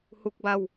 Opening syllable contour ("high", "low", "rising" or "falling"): high